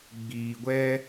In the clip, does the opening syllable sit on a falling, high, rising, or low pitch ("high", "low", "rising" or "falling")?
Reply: low